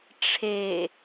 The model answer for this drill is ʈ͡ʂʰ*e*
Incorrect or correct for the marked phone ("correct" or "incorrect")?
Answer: correct